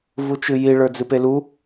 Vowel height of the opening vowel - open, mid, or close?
close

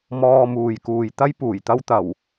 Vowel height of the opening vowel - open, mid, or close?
mid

